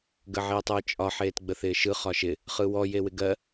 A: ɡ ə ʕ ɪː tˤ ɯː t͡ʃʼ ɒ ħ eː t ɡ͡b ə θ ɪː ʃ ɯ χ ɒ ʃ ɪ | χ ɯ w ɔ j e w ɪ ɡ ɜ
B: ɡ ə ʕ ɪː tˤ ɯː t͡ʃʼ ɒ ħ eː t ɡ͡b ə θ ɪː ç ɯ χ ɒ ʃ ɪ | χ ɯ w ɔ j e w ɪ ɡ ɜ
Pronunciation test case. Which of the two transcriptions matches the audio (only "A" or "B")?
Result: A